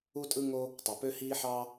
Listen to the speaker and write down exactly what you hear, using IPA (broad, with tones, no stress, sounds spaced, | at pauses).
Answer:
u˥ tʼ ɯ˥ ŋ o˥ | tˤ ɯ˩ p ø˥ h iː˥ ħ ɑ˥